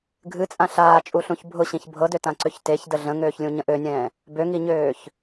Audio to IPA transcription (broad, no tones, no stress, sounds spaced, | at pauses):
ɡʱ ɨ t͡sʼ ã ɬ aː t͡ʃʼ u ɬ ũ ç bʱ ʊ ɕ ĩ ç bʱ ɤ d ø t ã ǀ ø ç t e ç d ə ɮ ə̃ ŋ øː ç lʲ ũ ɲ ə̃ ʔ ø nʲ ɛ̃ː | b ø ŋ i ɲ øː ç